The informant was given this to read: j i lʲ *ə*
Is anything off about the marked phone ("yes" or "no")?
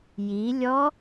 yes